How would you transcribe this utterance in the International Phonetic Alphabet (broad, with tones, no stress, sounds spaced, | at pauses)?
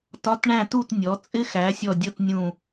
t ɒ˧˥˧ t ɳ æ̃˥˨ t u˥˨ t nʲ ɔ˩˥ t͡sʼ ɪ˥ x æ˩˥ sʲ ɔ˧˩ dʲ ʌ˥˨ t nʲ ũ˧˩